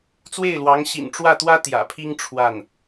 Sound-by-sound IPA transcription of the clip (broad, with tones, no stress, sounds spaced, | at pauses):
t͡s w e˥˩ ɪ̯ l w ɑ˧˥ ŋ ɕ ḭ˨˩ n ʈ͡ʂ w ä˥˩ t̪ w ä˥ t̪ j ä̰˨˩ pʰ i˥ ŋ ʈ͡ʂʰ w a˥˩ n